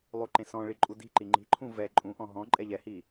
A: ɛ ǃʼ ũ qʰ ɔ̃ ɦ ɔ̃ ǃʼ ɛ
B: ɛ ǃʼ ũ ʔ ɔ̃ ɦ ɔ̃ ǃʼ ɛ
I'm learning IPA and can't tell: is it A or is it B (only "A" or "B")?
B